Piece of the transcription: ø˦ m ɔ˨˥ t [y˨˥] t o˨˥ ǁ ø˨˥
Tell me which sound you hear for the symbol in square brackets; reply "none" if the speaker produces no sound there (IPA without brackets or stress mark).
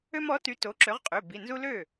y˨˥